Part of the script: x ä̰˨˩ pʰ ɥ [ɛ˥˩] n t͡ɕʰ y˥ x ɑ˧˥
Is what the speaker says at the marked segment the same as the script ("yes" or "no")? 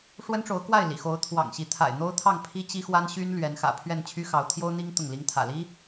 yes